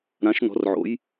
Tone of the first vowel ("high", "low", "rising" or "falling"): rising